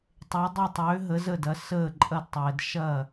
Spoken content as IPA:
tˤ e˨˥ dˤ ɛ˥˩ tˤ øː˨˥ ɦ ə˨˥ z ə˥˩ d ɐ˨˥ s əː˥˩ ǃʼ ɐ˥˩ d tˤ ɛː˨ d ʃ ɐ˥˩

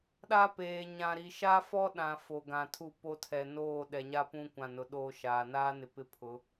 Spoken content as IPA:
ɗ a˦ p eː˨ ɲ ã˨ ɾ i˨ ʃ a˦ f ɔ˦ ɗ ã˨ f o˨ ɡ ã˨ tʰ u˦˨ p o˦ tʰ ɛ˨ n oː˦˨ ɗ ɛ˨ ɲ a˦ p ũ˦ kʷ ã˦˨ n ʊ˨ ɗ oː˦ ʃ aː˨ n aː˦ n ɪ˨ p ɪ˦ pʰ ʊ˨˦

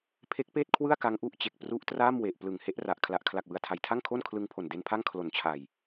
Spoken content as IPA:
pʰ e˦˥ k̚ p eː˥˩ t̚ kʰ w ɯ˥˩ a̯ k a˦˥ ŋ ʔ u˦˥ ʔ t͡ɕ e˨˩ k̚ p r u˦˥ ʔ t r aː˥˩ m w e˨˩ ʔ p l ɯ˨˩ ŋ h e˦˥ ʔ r a˨˩ ʔ kʰ l a˨˩ ʔ kʰ l a˨˩ k̚ w ɯ˨˩ a̯ tʰ a˨˩ j tʰ a˥˩ ŋ kʰ o˥˩ n kʰ l ɯ˧ ŋ pʰ o˨˩ n d e˧ n pʰ a˥˩ ŋ kʰ l o˨˩ n t͡ɕʰ aː˨˩ j

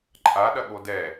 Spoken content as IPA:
ǃʼ a ɗ ɐ ɠ o d ɛ

